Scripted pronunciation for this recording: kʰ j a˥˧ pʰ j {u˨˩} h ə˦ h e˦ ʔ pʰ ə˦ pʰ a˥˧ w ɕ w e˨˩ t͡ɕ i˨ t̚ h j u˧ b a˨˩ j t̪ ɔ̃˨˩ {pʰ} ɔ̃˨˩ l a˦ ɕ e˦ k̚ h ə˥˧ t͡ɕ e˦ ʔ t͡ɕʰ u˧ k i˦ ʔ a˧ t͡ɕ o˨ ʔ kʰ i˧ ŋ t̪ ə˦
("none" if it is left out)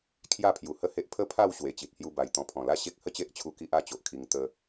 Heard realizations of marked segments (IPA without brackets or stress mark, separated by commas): u˨˩, pʰ